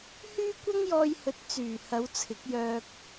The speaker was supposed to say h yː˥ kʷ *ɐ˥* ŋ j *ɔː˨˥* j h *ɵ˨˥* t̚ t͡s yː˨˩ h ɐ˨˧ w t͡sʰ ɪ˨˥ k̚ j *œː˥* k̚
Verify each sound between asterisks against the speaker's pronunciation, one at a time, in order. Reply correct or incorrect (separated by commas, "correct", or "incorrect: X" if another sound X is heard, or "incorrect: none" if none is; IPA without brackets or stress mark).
correct, incorrect: ɔː˧, correct, incorrect: œː˧